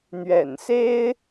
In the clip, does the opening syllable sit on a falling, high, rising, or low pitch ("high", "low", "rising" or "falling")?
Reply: low